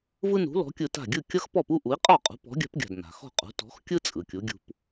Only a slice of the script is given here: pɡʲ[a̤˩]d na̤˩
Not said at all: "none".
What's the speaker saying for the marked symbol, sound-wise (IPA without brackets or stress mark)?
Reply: a̤˩